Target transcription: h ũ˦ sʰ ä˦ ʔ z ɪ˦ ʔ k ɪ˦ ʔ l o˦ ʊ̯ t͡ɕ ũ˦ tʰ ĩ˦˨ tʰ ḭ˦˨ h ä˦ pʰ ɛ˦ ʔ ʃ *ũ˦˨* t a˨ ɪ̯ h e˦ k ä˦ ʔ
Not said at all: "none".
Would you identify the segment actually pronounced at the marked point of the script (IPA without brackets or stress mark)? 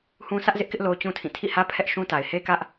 ũ˦